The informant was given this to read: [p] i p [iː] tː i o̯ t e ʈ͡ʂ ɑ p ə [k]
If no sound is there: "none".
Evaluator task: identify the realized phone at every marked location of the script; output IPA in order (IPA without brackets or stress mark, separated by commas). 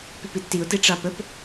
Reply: p, i, p